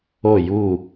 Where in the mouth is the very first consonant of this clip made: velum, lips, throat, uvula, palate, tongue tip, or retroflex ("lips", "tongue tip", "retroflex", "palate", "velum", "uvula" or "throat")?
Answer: palate